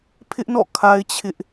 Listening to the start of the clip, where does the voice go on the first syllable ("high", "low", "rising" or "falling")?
high